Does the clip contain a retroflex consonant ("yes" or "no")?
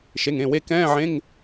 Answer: no